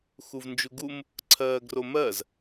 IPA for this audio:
x u v n d͡ʒ u ɡ u m | ǀʰ ɜː ɡ r o m ɜ z

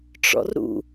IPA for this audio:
ʈ͡ʂ ɔ̰ r ɾ ṵ

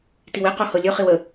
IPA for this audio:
t i w e q o h ɤ lʲ ɵ χ i w ə

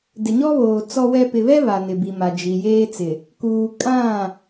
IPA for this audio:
d ɪ˨ ɲ ɔ˦ β oː˨ t͡s ɔ˦ w ɛ˦ p ɪ˨ β ɛ˦ β a˨ n ɪ˨ b i˨ m a˨ d͡ʒ i˨ j eː˦ t͡s ɪ˨ | k uː˨ kʼ ã˦˨

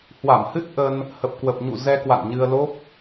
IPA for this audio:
h w a˧˩ m h ɨ˦˥ t̚ ʔ ə˧ n | h ə˨˩ p̚ k w ə˨˩ p̚ ɲ ṵ˧˨ z ɛ˧ k w a̰˧˨ n ɲ ɨ˧ ə̯ l o˦˥ p̚

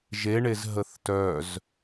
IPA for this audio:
ʒ e ɳ e z ɦ ə θ t œ z

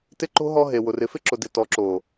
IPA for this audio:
t ɪ˦ ǃ o̤˦ ɦ ɔ˦ ɦ e˨ w ʊ˨ r ɪ˨ f ɪ˦ ǁ ʊ˨ d ɪ˨ t ɔ˨˦ ǁ o˨

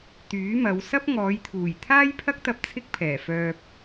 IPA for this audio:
t̪ yː˨˥ m ɐ˨˧ w s ɐ˥ p̚ ŋ ɔː˨˧ j t̪ʰ uː˨˩ j t̪ʰ aː˥ j pʰ ɐ˥ k̚ t̪ ɐ˧ p̚ t͡sʰ ɪ˥ k̚ pʰ ɛː˨˩ f œː˧ p̚

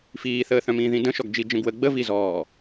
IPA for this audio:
f iː θ əː θ œ̃ m ĩː ð ĩ d ə̃ ʃ ɔ ɡ d͡ʒ i d͡ʒ ə̃ ɡ w ə ɡ͡b ə v i z ɔː

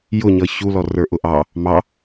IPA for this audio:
j ʊ ɲ ʌ ç u l ɔ r ə˞ ʔ ʊ ʔ ɑ | m ɑ

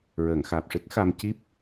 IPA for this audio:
ɹ əː˨˩˨ ŋ x aː˨˩ p̚ ʂ ɨ˦˥ k̚ x a˧ m c i˦˥ p̚

